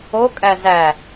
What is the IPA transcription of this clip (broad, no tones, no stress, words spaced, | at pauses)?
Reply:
okʼæ zæ